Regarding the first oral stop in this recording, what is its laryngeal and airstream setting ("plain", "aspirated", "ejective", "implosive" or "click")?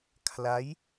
aspirated